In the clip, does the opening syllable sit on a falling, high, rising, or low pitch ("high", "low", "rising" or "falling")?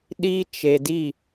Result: high